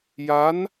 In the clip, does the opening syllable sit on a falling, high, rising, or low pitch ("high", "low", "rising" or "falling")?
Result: rising